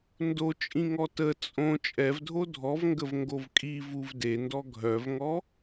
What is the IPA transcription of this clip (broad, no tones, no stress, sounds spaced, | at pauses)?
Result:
n d o t͡ʃʼ ĩ ŋ ɔ t ə t͡sʼ õ t͡ʃʼ ɛ v dʱ o dʱ ɔ v ŋ ɡ ə v ŋ ɡ o v kʼ i v u v d e n d ɔ ɡʱ œ v ŋ ɔ